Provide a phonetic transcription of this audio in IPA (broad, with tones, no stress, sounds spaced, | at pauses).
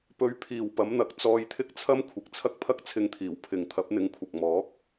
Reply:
p ɵ˨˧ ɥ pʰ iː˨ w p ɐ˨˥ m n̪ ɐ˨˥ k̚ t͡s ɔː˧ j t̪ʰ ɪ˥ k̚ t͡sʰ ɐ˥ m kʷʰ ɪ˨˥ k̚ t͡sʰ ɐ˥ k̚ pʰ ɐ˥ k̚ t͡sʰ ɪ˧ ŋ t̪ʰ iː˨˩ w pʰ ɪ˨ ŋ t̪ʰ ɐ˨˥ p̚ n̪ ɪ˨˥ ŋ kʷʰ ɐ˨ k̚ m ɔː˨˥ k̚